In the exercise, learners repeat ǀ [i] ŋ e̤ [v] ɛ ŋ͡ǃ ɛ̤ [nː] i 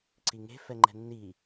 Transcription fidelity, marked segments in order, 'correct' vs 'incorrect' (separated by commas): correct, incorrect, correct